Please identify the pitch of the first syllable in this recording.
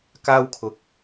high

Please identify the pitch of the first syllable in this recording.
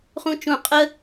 high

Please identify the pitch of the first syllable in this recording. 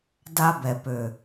high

